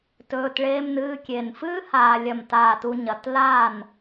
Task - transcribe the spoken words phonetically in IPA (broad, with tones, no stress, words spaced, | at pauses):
tɵː˧t ɭeː˥mnɨː˧˥˧kʲe˧˩n fɨː˥ haː˧ lʲɐ˧˩mtaː˧˩tu˧ ɲɐ˩˧t laː˥˩n